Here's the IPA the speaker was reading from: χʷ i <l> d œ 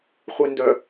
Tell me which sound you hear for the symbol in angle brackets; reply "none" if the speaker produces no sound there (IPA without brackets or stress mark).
n